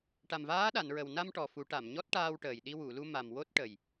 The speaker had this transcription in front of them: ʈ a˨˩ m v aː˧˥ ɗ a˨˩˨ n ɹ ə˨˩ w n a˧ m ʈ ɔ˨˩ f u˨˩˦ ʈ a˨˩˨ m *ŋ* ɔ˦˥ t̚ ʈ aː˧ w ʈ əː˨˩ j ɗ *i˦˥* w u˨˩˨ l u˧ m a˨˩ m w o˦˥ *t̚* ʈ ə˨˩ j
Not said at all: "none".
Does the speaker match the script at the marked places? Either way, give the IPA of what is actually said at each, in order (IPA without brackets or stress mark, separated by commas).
ɲ, i˧, t̚